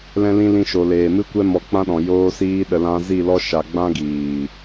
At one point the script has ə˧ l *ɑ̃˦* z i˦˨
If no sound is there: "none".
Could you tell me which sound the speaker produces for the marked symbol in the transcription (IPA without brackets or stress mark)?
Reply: ã˦